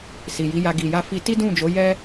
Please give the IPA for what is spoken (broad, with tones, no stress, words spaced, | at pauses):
si˨ji˨˦ja˧ ɡi˨ja˧ fi˧ti˦dũ˦˨d͡ʒo˨˦ jɛ˦